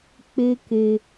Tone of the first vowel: high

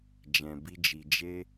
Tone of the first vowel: low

